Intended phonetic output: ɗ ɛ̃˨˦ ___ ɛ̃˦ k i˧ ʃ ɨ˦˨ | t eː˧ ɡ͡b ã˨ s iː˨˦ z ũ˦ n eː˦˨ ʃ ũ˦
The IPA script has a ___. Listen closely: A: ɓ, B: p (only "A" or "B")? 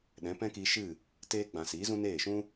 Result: B